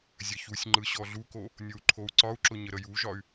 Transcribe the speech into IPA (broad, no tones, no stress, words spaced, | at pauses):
zʲɐçusʲŋ͡ǃɯ ɕɔɮuko | nʲou̯ǃʰou̯ǀɒu̯ǁʊ ɲəɾəjuʒɒy̯